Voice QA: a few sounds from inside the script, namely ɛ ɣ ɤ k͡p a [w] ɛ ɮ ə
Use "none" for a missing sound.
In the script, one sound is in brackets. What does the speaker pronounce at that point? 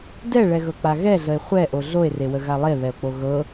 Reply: ɣ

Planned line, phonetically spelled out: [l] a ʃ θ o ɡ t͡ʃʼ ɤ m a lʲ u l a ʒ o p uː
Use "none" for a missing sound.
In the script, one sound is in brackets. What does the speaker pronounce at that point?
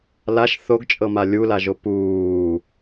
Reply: l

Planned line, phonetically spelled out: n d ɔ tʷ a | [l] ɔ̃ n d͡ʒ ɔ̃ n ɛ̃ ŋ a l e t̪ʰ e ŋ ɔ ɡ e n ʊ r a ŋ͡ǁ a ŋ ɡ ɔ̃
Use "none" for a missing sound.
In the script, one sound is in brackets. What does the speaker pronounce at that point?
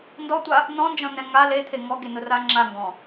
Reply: n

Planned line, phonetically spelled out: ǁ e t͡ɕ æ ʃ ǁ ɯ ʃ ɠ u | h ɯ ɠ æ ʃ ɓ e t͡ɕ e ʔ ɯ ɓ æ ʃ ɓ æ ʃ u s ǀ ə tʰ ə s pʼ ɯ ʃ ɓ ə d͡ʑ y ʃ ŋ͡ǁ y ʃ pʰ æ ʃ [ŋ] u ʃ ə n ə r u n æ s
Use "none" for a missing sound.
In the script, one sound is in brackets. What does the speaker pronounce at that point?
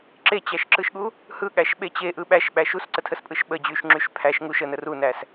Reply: ŋ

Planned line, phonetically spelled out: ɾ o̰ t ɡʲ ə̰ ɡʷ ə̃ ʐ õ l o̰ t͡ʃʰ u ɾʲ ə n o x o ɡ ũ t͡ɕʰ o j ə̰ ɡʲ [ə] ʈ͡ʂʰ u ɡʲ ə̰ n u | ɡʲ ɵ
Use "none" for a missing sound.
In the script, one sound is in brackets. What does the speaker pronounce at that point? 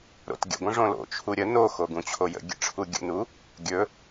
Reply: ə̰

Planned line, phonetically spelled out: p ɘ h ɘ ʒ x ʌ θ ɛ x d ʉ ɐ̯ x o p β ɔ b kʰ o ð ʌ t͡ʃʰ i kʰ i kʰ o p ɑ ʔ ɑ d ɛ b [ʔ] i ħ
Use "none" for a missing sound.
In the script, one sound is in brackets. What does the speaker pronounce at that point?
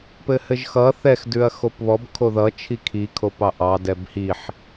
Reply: h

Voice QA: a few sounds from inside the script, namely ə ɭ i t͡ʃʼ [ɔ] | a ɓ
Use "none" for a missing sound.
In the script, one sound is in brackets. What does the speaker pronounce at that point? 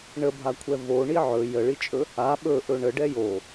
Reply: ɵ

